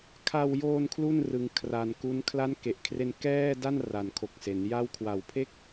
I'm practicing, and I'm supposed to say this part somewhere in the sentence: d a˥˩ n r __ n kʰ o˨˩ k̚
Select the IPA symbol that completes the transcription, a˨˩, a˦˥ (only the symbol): a˨˩